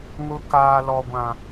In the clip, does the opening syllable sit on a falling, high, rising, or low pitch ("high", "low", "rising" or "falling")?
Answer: low